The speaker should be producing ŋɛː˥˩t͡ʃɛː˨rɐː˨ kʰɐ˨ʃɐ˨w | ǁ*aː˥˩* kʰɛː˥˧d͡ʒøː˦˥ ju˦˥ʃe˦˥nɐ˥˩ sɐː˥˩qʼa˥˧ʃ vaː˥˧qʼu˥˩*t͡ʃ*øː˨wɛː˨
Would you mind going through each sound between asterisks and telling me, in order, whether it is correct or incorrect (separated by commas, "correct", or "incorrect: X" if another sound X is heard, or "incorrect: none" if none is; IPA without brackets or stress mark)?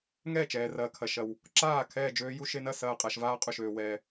correct, incorrect: ʃ